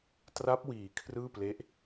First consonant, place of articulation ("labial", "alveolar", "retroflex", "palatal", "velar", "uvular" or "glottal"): alveolar